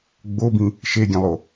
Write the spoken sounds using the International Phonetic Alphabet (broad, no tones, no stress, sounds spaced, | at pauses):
ɡ͡b o b ĩ | ʃ e ɡʲ ẽ lˠ o